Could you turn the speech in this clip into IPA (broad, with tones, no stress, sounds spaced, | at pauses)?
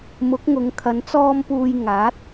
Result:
m ʊ˨˥ k̚ ŋ ʊ˨˧ ŋ kʰ ɐ˨˧ n t͡s ɔː˥ m p uː˧ j ŋ aː˨˥ t̚